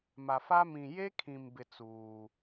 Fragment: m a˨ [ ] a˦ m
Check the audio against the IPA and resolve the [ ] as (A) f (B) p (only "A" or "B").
A